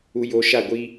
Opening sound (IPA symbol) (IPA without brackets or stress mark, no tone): u